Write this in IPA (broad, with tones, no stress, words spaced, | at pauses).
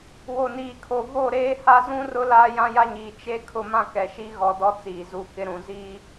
wo˨niː˨kʰo˨ vo˦˨ɾeː˦ha˦ zũ˦rʊ˦ laː˦jã˦ja˦ɲiː˨ t͡ʃe˦ kʰʊ˦mã˦kɛ˨ʃi˦ ɣɔ˨ dɔ˦t͡siː˨ zu˨ kɪ˦ɾũ˨ ziː˦